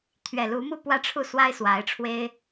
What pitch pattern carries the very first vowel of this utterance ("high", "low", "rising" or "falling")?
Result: low